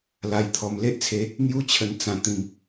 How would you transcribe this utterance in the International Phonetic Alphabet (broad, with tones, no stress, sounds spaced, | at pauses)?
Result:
l a˧ j t̪ʰ ɔ˧ m l e˦ ʔ t͡sʰ e˧ | n̪ j u˦ t͡ɕʰ ə˧ n t͡s ã˧ t̪ ĩ˧ m